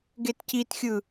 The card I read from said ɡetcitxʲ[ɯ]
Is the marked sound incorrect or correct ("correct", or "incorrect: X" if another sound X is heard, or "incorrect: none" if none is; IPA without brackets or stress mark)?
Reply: correct